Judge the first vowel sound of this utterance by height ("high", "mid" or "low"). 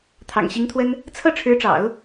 low